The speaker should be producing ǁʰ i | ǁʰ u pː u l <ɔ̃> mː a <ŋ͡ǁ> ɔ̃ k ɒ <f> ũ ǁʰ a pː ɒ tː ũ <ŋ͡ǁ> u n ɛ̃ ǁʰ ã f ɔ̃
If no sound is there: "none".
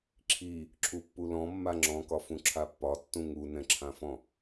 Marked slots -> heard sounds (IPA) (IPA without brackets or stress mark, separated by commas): ɔ̃, ŋ͡ǁ, f, ŋ